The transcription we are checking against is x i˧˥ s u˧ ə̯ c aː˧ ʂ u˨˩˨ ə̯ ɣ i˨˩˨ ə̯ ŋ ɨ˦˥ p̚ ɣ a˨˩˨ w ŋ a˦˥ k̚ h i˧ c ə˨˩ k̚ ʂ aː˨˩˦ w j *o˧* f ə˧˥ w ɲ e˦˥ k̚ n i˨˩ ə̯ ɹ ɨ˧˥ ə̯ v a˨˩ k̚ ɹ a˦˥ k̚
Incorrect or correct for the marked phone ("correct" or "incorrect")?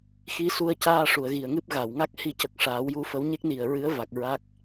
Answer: incorrect